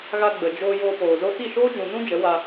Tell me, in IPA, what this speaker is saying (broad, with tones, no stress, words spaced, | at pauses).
ɣa˧ɡ͡bə˨ d͡ʒoː˧ joː˧poː˨zo˦ ti˦˨ʃoː˦d͡ʒũ˨nũ˦ d͡ʒə˨˦wa˧